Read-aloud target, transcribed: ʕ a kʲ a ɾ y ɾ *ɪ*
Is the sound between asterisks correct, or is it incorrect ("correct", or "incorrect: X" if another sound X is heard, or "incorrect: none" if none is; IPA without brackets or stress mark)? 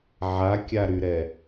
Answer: incorrect: ɛ